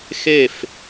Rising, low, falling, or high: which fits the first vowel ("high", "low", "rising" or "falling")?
falling